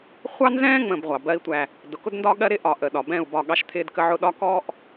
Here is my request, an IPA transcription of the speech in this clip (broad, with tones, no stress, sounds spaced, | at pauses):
χʷ ɑ˦ n z ɛ̃ː˦ ŋ͡m ə̃˨ b ʁʷ ɑ˨ b ɜ˦ i̯ tʷ æ˦ | d ʊ˨ k ʊ˦ d n d ɒ˦ ɠ ɜ˦ ɾ ɪ˦ ʔ ɒ˨ ʔ ə˨ ɗ ɒ˨ b ɛ̃˦˨ u̯ b ɒ˦˨ ɠ ɑ˦ ʃ t̪ʰ ɪː˦ d k ə˦ ʕ ʊ˦ ɗ ɒ˦ k ɔ˦ ʔ